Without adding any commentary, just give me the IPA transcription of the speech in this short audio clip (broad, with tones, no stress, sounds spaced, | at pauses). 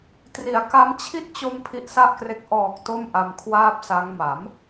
t r i˨˩ a̯ k a˦˥ m t͡ɕʰ i˦˥ t̚ t͡ɕ o˧ m pʰ i˦˥ ʔ s a˥˩ ʔ k r e˦˥ k̚ ʔ ɔː˨˩ k̚ t o˥˩ m ʔ a˧ m kʰ w aː˥˩ p̚ s a˦˥ ŋ m a˩˦ m